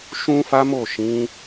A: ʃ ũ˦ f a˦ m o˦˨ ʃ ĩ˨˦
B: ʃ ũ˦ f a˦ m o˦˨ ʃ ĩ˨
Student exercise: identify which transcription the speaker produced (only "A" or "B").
A